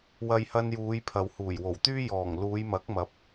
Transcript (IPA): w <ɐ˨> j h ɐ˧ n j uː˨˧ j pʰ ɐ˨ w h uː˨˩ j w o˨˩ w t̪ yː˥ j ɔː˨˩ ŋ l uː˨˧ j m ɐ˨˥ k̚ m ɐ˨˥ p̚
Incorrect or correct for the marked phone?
incorrect: ɐ˧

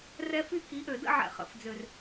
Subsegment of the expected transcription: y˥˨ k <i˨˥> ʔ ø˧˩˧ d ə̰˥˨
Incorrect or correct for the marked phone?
correct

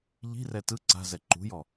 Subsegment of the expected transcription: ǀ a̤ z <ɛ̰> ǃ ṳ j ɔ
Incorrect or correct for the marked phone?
incorrect: ɛ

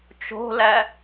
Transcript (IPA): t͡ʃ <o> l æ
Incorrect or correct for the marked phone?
incorrect: o̤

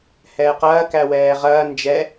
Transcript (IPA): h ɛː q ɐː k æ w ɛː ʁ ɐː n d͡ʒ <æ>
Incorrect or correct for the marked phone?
incorrect: ɛ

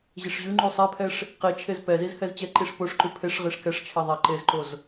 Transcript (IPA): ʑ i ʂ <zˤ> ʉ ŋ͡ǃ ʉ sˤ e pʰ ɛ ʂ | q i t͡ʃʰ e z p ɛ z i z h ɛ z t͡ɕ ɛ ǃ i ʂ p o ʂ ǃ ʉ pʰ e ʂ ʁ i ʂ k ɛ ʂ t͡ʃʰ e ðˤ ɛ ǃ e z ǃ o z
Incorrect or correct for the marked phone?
incorrect: ʑ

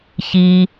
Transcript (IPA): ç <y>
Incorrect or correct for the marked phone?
incorrect: i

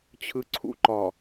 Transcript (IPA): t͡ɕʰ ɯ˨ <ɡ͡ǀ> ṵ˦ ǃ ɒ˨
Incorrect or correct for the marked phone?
incorrect: ǀʰ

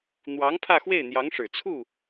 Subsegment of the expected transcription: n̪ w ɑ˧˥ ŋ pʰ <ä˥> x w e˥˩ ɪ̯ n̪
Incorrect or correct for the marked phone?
incorrect: ä˥˧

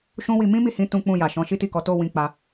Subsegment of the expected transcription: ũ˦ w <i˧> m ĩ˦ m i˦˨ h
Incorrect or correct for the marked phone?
correct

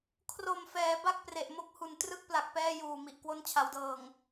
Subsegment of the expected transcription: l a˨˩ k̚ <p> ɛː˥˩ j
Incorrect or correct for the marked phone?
correct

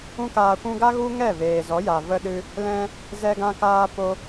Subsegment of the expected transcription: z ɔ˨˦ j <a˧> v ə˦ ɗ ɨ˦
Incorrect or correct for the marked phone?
incorrect: a˨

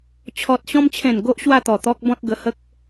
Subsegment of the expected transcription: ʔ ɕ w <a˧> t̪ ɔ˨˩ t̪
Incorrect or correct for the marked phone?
incorrect: a˥˧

